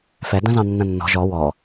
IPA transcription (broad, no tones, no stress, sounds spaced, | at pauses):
f ɛ d ɐ̃ z ɑ̃ nː ɐ̃ nː ɔ̤ ʒ ɔ w ɔ